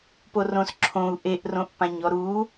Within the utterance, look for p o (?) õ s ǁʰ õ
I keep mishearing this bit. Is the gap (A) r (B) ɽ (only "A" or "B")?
A